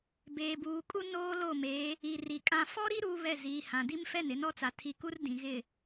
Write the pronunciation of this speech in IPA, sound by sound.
beː˨buː˨kʼu˦ noː˦lo˦˨me˨˦ | i˨ri˨kʼã˦ fɔ˦ɾi˦ ɾuː˦βɛ˦˨ ziː˨hã˨di˦mfɛ˦˨n ɪ˨˦nɔ˦t͡sa˨ tʰi˨ku˦r dĩ˨ɣɪ˦˨

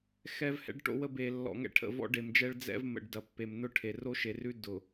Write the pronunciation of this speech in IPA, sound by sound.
xɛ˦vhɛ̰˦ɖʈo̰˦wə˦ be˨lːɔ̰˨ ŋɛ̰˦ʈʰə̰˨ vɔ̰˦ɖe˨md͡ʒɛ˦ɭ d͡zɛ̰˦vmə̰˨ɖ dɐ˨pːe˨mnʊ˦ʈʰe˨ ro˦ʃe˨rʉ˦ dʊ˨

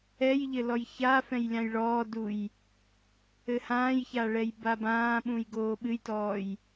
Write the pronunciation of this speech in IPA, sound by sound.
ɛjʎɘ lɔjçafɛ̃j lʲãjɭɔːduj | ɘhãːjça ɭɛjbabãːɓũj ɡoːɓɨjtɔːj

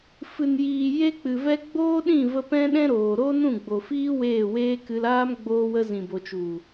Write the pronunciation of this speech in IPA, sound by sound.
fɨ˨njiː˨ je˦k͡pɨ˨vɛ˦ ɡ͡boː˦ɗĩ˦˨və˧ pɛ̃˦ɗɛ̃˦ɾoː˨ ɾo˦nũ˦˨ɡ͡bo˨fiː˦ weː˦˨weː˦kɨ˧l aː˦m ɡ͡boː˦wə˦ zĩ˨bo˨t͡ʃu˨

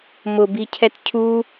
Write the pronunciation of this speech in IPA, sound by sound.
mʊbicʰɛt cʰu

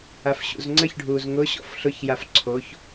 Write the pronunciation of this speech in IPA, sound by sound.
afɕṵzŋ͡ǀəçɖʱuːz ŋʊɕɔ̰f ɬʊçjaf ǀʰoç

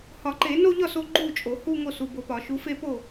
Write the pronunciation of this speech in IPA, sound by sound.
hɒ˨˩˦ǃe˨˩˦no˥˧ʎɒ˥˩s o˥˧ɡ͡ǃu˥˩t͡ʃʼo˨˩˦hu˥˧ ŋo˥˩su˨bo˨˦pɒ˨˩˦ ʃu˨˦fe˥˧po˥˩

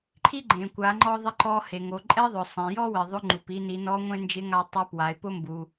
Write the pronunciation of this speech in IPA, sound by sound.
ǃʰi˥ɡ͡ǃẽ˩ kʷa˩˧ŋ͡ǃɔ˧ðˤɪ˧ ǃɔ˧he˩ ŋo˩ǃʼɛ˧ðˤʊ˩ sˤẽ˩jɔ˥wɪ˩ ðˤʊ˧˥ŋ͡ǃu˩pi˧ ni˩˧nɔ˧˥ŋʷẽ˥ nd͡ʒɪ˧˥ŋa˧tˤe˧˥ pwa˩˧e̯ pʊ˥ mbu˩

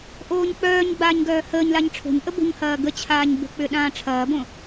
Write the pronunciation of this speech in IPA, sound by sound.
ʔoːɲk͡pœːɲɡ͡baːɲ ɡœːhəːɲlaɲ ʈ͡ʂʰo̤ɲʔə bo̤ɲhɐː ɡət͡ɕʰaːɲ bə̤k͡pʏ ɗãːʈ͡ʂʰɐːbõ

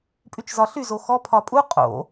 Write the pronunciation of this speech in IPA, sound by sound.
pʼyt͡ʃzɒɬy zoxɔ pʰɒpʼu qʼo̰

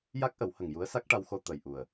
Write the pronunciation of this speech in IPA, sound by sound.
ja˦˥k̚ʔə˨˩˦whə˨˩ŋ ju˧˥ə̯sa˦˥k̚ʈa˧wxo˧ t̪ə˨˩j ʔu˨˩ə̯

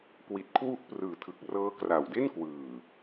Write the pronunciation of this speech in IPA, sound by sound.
kwi˨˩t̚kʰwu˦˥ʔprɯː˨˩tʰɯ˨˩k̚ rɤː˦˥kra˨˩wde˥˩n kwɯː˨˩

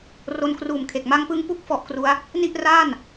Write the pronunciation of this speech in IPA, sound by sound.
ro˧nkruː˨˩mkʰe˨˩k̚ ma˦˥ŋpɯ˦˥ŋpu˥˩k̚ fɔ˦˥ʔkru˦˥a̯ | ni˥˩ʔraː˥˩n

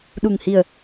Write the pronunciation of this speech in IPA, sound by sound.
ɗu˨˩ŋhi˨˩ə̯

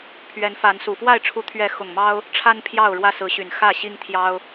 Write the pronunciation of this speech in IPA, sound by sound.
pʰɥɛ˨˦nfa˨˦nsu˨˩ fwa˥˨ɪ̯ ʈ͡ʂʰu˨˦t̪ʰɥɛ˨˦ xʊ˨˩ŋ mɑ˦ʊ̯ | ʈ͡ʂʰa˦n pʰjɑ˥˨ʊ̯ɻwä˦sɹ̩˨˦ɕy˨˩n xä˥˨ ɕi˦ŋt̪ʰjɑ˦ʊ̯

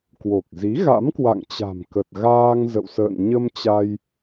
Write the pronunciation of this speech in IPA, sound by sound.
kwo˨˩k̚zi˨˦ ɣa̰˧˥mkwa̰˧˨ŋt͡ɕa̤˨˩mkə˨˩t̚ ɣaː˧ŋ zə̰˧˨wsə̰ː˧˨n ɲə˧m t͡ɕa˧j

